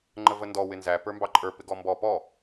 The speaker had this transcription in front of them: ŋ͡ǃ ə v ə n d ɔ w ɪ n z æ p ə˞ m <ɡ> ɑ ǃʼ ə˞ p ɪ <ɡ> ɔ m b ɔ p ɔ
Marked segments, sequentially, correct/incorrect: incorrect: b, correct

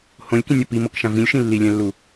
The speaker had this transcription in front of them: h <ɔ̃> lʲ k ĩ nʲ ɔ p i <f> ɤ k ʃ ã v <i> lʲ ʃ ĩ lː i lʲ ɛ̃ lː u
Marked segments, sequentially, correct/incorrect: incorrect: õ, incorrect: m, incorrect: ĩ

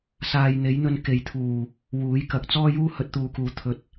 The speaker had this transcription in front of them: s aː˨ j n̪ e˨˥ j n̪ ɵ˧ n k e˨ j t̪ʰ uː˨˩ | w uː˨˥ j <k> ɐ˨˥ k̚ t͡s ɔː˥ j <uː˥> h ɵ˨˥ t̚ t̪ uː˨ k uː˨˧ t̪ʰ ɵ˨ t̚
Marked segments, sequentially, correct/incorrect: correct, correct

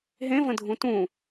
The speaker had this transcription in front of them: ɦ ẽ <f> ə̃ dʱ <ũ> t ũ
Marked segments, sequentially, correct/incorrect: incorrect: v, correct

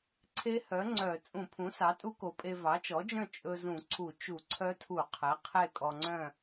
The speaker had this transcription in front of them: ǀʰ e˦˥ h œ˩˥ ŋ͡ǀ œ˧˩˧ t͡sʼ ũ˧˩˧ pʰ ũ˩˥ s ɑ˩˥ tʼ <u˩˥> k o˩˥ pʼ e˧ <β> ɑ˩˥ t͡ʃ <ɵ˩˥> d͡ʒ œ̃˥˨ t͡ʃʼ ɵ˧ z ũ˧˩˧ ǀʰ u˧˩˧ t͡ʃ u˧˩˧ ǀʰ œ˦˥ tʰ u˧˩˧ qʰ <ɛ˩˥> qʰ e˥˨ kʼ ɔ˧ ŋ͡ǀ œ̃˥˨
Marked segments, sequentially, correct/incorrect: incorrect: u˦˥, incorrect: v, incorrect: ɔ˩˥, correct

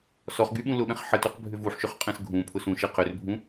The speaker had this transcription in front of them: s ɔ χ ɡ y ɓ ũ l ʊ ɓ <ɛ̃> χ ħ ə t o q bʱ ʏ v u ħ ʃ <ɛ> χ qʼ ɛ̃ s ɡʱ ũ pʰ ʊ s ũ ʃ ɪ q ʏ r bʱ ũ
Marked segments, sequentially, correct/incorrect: correct, incorrect: ʏ

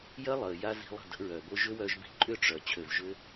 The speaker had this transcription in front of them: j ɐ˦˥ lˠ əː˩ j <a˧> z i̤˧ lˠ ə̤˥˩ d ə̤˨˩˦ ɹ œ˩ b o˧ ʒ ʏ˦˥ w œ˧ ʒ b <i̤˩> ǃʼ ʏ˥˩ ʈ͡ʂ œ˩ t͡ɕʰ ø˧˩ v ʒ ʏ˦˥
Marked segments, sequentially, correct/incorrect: correct, incorrect: i̤˧˩

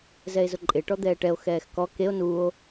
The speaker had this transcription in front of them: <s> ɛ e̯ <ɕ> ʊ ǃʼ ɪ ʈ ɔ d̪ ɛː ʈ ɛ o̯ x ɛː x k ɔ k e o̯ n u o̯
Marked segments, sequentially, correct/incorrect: incorrect: z, incorrect: z

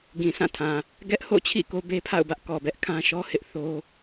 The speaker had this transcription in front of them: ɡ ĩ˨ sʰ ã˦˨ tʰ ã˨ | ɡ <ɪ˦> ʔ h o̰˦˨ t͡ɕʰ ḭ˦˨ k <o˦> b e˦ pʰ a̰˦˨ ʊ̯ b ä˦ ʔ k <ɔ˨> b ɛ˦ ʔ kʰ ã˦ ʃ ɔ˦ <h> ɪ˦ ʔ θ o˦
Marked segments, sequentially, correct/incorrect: incorrect: ɛ˦, correct, correct, correct

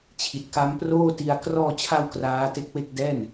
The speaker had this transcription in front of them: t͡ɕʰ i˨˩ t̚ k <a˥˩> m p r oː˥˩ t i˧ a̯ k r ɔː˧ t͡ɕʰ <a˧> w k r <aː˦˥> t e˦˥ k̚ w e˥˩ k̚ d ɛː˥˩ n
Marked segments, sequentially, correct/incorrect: incorrect: a˦˥, correct, correct

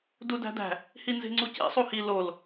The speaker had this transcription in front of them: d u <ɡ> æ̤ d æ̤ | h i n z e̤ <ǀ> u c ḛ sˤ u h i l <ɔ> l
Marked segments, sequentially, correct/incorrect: incorrect: d, incorrect: ŋ͡ǀ, incorrect: o

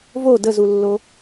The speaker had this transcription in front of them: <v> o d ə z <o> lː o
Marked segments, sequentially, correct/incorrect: correct, incorrect: u

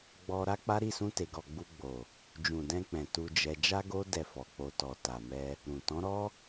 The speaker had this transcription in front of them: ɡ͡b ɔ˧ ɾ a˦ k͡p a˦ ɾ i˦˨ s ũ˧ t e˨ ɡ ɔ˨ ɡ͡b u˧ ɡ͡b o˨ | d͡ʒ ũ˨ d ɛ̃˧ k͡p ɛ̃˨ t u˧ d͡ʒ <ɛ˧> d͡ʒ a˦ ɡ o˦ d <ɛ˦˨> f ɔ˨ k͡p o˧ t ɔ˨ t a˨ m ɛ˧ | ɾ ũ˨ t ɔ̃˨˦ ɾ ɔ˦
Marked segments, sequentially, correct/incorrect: correct, correct

